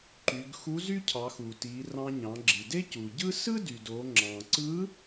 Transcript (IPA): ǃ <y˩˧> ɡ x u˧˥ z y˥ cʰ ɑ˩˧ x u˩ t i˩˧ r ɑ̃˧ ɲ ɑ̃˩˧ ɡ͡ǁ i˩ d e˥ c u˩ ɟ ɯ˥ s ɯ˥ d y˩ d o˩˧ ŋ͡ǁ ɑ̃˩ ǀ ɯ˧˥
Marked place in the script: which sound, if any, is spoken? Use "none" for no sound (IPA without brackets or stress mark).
y˩˧